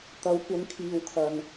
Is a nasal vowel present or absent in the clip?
absent